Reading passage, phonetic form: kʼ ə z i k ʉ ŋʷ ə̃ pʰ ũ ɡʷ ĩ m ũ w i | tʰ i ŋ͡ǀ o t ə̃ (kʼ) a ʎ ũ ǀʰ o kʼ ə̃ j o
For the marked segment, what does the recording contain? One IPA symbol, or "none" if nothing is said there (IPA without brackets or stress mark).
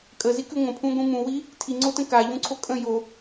k